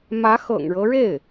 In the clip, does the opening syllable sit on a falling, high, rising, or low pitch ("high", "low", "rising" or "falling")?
rising